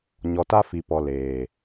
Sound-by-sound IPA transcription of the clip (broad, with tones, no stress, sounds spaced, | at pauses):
ɲ ɔ˨ t a˦ f i˨ p ɔ˨ l eː˨